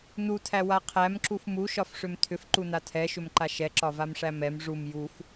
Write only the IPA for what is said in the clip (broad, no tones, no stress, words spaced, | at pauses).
nutʰæwa qʰæmǁuf muʃɒfʂʏm tʰʏfǃuna tʰɛʃʏmǃa ʃɛǁɒvamʂæ mɛm ʐum juf